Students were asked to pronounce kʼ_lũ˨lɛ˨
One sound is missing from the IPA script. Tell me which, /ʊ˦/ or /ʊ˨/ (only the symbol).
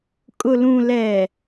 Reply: ʊ˨